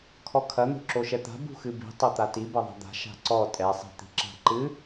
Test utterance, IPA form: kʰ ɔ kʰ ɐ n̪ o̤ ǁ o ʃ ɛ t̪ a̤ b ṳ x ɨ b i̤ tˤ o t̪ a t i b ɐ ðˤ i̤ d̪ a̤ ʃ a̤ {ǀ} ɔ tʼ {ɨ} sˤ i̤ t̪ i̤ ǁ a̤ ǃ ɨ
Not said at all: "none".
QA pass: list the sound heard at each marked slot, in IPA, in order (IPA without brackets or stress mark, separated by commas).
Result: ǀ, ɛ